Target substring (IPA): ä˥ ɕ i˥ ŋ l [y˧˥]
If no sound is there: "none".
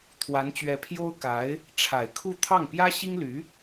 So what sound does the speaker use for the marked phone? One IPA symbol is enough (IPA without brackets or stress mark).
y˧˥